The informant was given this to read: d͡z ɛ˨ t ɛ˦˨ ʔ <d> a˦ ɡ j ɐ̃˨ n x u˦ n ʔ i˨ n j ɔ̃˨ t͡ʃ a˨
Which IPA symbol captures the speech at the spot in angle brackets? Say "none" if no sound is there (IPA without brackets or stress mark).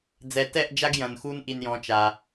d͡ʒ